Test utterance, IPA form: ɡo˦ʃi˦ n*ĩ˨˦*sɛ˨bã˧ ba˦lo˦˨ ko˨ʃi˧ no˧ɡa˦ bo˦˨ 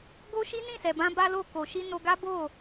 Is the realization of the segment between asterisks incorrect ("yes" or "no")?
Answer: yes